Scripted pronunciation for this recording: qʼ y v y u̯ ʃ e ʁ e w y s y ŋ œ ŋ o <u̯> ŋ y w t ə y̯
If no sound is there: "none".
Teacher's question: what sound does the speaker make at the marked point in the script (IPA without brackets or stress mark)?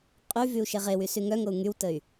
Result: u̯